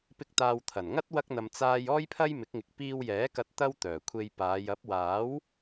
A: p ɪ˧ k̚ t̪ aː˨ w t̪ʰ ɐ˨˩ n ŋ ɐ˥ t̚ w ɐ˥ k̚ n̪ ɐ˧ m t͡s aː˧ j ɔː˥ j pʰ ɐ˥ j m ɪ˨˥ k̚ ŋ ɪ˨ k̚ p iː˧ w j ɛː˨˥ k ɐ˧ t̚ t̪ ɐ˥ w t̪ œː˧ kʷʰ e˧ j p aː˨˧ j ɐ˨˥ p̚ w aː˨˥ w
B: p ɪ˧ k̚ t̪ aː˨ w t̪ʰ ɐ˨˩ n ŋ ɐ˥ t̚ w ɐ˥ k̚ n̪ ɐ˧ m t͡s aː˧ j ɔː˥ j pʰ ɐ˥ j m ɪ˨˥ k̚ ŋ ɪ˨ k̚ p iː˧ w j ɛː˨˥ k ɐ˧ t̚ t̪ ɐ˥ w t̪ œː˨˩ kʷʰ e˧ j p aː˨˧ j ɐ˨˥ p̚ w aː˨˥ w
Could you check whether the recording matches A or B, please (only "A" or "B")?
B